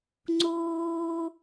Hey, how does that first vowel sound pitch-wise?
high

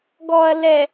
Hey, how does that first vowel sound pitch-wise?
low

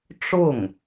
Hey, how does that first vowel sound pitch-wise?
falling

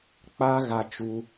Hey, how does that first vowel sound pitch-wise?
high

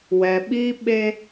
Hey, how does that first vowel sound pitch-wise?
low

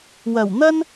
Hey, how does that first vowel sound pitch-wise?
low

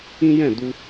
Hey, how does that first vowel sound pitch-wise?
high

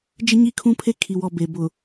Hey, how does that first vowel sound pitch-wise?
high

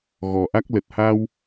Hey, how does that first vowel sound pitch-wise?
low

